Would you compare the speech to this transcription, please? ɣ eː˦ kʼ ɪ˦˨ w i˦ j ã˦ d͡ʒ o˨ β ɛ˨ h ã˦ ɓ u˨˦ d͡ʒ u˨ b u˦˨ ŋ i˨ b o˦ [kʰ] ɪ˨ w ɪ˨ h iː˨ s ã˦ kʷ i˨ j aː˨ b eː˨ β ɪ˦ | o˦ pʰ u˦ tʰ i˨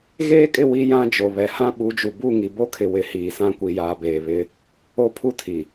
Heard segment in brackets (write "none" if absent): kʰ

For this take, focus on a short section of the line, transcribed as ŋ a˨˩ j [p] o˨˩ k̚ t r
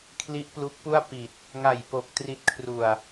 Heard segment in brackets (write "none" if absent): p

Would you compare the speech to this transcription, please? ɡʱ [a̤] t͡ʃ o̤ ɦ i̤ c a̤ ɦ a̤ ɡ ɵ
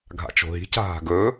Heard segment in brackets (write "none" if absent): a̰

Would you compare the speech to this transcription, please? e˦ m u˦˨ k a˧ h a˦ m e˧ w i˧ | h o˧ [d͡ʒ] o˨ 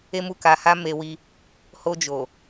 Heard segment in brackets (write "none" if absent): d͡ʒ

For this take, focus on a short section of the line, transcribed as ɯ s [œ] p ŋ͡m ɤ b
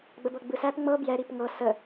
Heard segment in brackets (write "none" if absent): æ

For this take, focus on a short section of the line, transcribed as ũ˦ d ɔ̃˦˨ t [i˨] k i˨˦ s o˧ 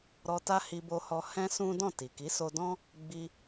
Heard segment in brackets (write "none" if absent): i˨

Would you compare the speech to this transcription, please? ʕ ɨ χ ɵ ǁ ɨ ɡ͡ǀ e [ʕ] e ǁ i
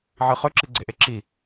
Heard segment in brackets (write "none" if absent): ʔ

